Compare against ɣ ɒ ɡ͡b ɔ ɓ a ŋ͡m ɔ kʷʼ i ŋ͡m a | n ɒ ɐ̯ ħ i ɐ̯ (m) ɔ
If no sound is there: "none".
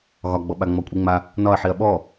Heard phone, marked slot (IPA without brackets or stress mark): ɓ